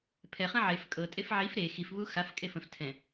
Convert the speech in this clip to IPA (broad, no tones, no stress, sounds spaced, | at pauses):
pʰ ɛ χ ə̃ ʕ e f kʼ ɤ tʼ e f ʕ i f ɾ e x i f β u x a f kʼ e f ə̃ f tʰ ɛ̃